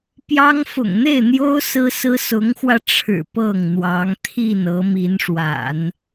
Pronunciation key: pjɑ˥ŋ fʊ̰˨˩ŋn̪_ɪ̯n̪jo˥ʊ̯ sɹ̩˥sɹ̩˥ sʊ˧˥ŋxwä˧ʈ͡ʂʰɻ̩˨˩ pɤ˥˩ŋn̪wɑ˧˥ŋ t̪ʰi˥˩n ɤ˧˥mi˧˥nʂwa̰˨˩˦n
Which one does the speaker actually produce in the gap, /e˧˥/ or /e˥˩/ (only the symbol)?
e˥˩